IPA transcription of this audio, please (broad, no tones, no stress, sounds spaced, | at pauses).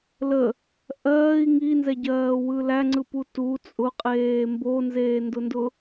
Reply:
l ə | ʔ ɜː i̯ ŋ i n z ɛ ɟ ɜː w ɯ l æ ŋ͡ǀ ɯ p u t u t͡sʼ ʊ qʼ eː m b o n z eː n d ʊ n d ʊ